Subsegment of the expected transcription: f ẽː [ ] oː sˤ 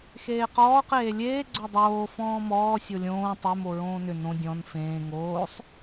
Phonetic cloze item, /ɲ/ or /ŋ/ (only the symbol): ŋ